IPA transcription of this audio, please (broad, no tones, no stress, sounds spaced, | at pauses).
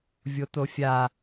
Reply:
vʲ o t o fʲ a